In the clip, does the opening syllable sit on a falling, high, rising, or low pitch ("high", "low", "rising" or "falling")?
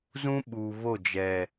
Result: high